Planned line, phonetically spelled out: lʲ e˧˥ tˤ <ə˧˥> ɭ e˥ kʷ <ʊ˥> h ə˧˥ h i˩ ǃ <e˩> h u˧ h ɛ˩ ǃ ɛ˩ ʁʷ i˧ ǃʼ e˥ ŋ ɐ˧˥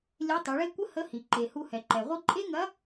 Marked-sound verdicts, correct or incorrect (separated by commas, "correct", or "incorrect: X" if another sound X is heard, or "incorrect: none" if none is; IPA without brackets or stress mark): incorrect: ə˩˧, incorrect: ə˥, correct